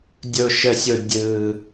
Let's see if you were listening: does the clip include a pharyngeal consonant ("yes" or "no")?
no